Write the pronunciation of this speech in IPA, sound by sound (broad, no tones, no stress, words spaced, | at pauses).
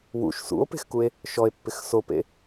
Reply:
wṵʃ sṵo̯pe̤xkue̯ | ʃɔe̯pːɪx sopḛ